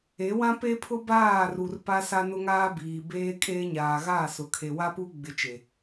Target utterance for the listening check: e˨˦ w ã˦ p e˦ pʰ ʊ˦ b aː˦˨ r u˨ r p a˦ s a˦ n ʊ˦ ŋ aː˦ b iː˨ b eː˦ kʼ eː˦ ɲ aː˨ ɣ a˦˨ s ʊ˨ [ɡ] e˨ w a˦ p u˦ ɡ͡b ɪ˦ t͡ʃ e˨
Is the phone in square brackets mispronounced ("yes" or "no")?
yes